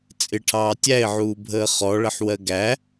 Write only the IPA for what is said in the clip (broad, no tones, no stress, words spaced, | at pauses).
t͡sʼɪʈʰɑː tʲæɪ̯ʕuːbʱəː χɔɭəħwɜ ɡæ